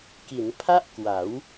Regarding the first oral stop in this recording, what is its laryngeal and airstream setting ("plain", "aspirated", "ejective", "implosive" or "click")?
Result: plain